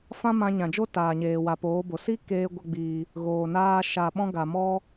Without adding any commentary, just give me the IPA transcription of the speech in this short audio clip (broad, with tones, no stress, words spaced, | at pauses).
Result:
fã˦mã˧ɲã˨d͡ʒo˦ taː˨ɲeː˨wa˨ poː˨˦bo˨ si˦ keː˧ ɡʷa˦ɡ͡biː˧ | ɣoː˨naː˧ ʃa˨ɓɔ̃˧ ɡa˨mɔ˦